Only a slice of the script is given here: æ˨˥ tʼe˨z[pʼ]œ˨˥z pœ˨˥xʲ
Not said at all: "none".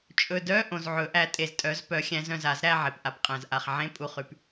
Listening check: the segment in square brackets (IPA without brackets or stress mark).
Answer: tʼ